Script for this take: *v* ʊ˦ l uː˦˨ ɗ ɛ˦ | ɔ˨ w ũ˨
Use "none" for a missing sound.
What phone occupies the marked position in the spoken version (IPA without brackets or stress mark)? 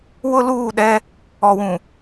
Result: w